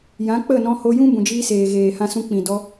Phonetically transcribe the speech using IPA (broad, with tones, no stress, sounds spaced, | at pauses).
j ã˨˦ k͡p ə˦˨ n ɔ̃˧ h o˧ j ũ˦ b ũ˨ d͡ʒ iː˧ s eː˨ ɣ eː˨ h ã˧ s ũ˧ k͡p ĩ˨ d ɔ˧